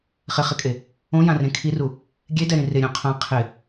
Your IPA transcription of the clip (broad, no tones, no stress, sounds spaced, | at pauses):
χ ɪ χ ɪ kʼ e | õ j ã r ẽ kʰ i r u | ɡʲ e d ɛ ɾ ĩ r ɪ ɾʲ õ qʰ ã qʰ ɪ